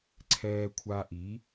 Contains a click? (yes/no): yes